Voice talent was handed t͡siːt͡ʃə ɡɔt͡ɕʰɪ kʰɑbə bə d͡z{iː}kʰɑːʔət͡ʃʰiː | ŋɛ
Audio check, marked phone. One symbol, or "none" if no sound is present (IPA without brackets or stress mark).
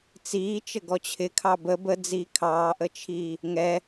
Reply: iː